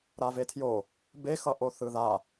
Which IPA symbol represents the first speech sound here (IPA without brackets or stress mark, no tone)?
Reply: ɾ